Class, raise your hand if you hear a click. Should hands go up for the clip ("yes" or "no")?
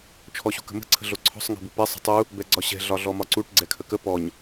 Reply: yes